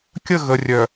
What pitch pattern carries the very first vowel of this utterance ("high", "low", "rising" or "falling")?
falling